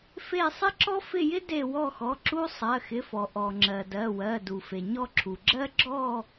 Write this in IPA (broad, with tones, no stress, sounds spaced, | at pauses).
f e˦˨ sˤ ɪ˥ ǁ ɔ˥ f ɪ˦˨ j ɪ˥ d e˦˨ w ɔ˦˨ x ɔ˩˧˩ ǁ u˥ sˤ ɜ˩˧˩ x ɪ˩˧˩ f ɔ˩ ʔ ɔ˩ ŋ͡ǁ ɜ˩ d ɜ˩˧˩ w ɜ˩˧˩ d u˩ f e˩ ɲ ɔ˦˨ ǁʰ u˩ ɡ͡ǁ ɜ˥ ɡ͡ǁ ɔ˦˨